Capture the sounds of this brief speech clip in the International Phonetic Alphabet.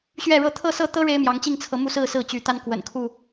ɕ ɥ ɛ˥˨ ɻ ɤ˥˨ t̪ʰ ɤ˥˨ s ɤ˥˨ t̪ ɤ˦ ɻ e˦ ɪ̯ m j ɑ˨˦ ŋ t͡ɕ i˥˨ ŋ t͡sʰ ɤ˨˦ m u˦ s ɹ̩˥˨ s ɹ̩˥˨ t͡ɕ y˨˦ t̪ a˦ n k w ə̰˨˩ n kʰ u˥˨

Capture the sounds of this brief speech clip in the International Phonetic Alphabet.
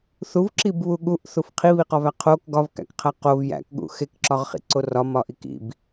θ u v ǁ i b β u ɠ u ʔ θ u f qʰ i β i q ɒ v æ qʰ o k ɡ ɒ v k æ̰ k qʰ æ q o v j æ̰ k ɠ ṵ x e k ǁ ɒ ʁ χ ḭ ǀ o r ɒ m ɒ ʔ i k ḭ b

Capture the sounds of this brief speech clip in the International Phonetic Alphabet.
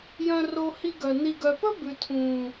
j œ̃˧ r o˧ h i˧ ɡ œ˨ n i˨ ɡ œ˨ p ɵ˦ b ʉ˨ tʰ ũː˨

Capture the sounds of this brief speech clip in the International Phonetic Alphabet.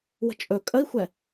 w ə̤ t͡ʃʼ ɵ kʼ ə i̯ xʷ ɛ

